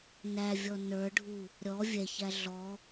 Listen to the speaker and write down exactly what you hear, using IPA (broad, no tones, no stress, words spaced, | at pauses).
nævʲɔ nə˞ɖʱu | ɾʲɔ vʲɛçæ ɮɔ